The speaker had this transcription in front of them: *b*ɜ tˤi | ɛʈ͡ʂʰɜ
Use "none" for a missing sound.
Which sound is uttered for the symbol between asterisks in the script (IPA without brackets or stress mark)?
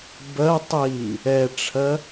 b